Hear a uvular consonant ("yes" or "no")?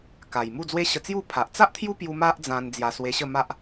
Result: no